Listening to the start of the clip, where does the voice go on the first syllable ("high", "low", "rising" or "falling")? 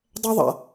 high